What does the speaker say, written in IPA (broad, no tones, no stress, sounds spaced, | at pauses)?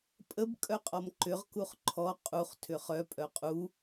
pʼ ə b kʼ œ qʼ ɔ m ǃ ʏ ʁ k u χ ǃʰ ɔ qʼ u χ tʰ ʏ χ œ pʼ œ qʼ u